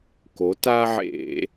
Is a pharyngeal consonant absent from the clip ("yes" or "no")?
no